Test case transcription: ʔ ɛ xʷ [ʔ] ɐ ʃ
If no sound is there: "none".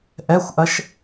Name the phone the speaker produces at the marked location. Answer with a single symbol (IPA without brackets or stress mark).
ʔ